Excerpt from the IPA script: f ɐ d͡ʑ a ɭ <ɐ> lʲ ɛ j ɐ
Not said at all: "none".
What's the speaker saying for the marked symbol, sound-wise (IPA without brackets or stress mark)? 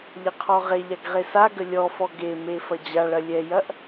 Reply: ɐ